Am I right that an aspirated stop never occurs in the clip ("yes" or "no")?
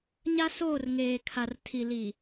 no